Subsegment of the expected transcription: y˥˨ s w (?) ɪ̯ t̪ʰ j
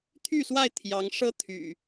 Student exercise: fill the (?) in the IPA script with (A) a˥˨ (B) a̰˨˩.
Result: A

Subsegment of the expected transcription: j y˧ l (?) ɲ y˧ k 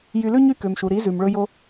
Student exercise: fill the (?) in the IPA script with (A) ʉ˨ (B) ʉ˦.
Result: B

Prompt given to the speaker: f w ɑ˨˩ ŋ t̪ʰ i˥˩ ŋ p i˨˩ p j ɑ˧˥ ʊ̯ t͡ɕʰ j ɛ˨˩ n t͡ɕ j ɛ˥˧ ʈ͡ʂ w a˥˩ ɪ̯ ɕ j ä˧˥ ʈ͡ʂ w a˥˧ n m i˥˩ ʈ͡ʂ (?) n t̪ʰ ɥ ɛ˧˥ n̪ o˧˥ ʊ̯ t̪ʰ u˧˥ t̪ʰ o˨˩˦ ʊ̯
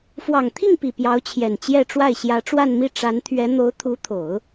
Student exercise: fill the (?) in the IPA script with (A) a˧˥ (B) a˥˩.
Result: A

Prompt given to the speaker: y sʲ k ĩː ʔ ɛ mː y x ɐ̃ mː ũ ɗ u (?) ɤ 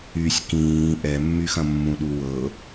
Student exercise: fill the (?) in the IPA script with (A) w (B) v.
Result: A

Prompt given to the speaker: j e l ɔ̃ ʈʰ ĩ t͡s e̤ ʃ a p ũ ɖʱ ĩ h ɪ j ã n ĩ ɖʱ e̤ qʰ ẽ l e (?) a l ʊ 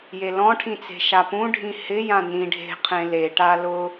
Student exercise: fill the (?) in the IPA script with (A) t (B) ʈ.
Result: B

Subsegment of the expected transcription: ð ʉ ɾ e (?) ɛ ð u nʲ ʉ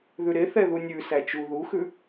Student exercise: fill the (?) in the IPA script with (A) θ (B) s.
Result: A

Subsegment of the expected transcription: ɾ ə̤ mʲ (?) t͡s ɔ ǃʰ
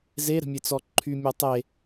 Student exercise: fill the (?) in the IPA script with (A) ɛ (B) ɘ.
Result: B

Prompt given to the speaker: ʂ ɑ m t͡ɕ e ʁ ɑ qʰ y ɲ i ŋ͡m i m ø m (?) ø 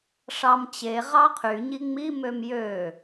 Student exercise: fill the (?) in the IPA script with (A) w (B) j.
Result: B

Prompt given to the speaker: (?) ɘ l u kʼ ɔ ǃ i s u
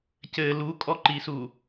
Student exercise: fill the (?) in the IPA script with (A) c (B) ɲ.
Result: A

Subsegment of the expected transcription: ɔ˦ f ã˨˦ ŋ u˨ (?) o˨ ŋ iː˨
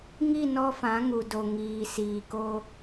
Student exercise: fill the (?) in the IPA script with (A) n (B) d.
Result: B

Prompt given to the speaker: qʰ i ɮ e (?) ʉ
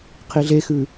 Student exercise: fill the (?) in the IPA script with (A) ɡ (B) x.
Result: B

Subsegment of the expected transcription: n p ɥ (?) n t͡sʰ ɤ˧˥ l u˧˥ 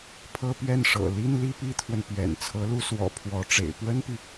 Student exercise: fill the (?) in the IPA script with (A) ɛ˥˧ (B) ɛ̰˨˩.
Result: B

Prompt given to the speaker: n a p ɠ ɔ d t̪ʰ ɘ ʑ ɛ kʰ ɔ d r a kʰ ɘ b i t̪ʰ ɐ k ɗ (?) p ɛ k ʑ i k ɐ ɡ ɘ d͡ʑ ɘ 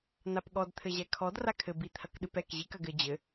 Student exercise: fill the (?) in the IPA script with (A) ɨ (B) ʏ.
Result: A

